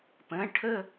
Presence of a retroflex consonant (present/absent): present